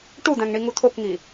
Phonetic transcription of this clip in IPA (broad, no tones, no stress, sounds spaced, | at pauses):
ʈ u d̪ æ̃ ŋ ɳ i ŋ u t̪ʰ o k ŋ i